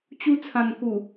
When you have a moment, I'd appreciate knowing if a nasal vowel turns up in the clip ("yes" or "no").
yes